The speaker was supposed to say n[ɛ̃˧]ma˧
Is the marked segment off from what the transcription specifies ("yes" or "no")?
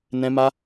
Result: no